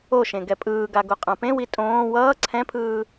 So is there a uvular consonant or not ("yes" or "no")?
yes